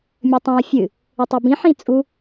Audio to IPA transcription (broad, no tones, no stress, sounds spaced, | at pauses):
mʲ ɘ tˤ ĩ ə̯ fʲ ɨ | ɘ tˤ e b ĩ ħ ĩ t͡sʼ u